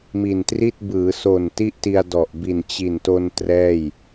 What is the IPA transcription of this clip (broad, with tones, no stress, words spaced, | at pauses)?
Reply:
mi˨˩ntri˥˩t̚ bɯː˩˦so˨˩n ti˥˩ʔti˧a̯dɔ˨˩ʔ bi˨˩nt͡ɕi˨˩nto˧n trɛː˥˩j